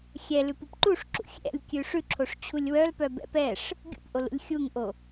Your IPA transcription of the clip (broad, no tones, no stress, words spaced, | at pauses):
xʲɛlʉpup ǃuʂǁṵ xʲɛ̰lʲkʲʉ ʂʉǁʰoʂt͡ɕʰulʲ wœlpœbɛ̰ pɛʂ | ɡʲṵpʔolṵlʲ xʲuŋʔo